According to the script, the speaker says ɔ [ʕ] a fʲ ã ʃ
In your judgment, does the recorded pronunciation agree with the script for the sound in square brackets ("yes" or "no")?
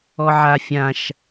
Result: yes